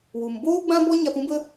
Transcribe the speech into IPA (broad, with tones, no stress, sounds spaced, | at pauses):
w u˨ m b oː˦ ɡ͡b ã˦ b ɔ˦ ɲ a˧ p ũ˦ b ə˦